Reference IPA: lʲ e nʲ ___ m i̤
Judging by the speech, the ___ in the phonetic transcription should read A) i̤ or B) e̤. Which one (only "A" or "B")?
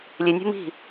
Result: B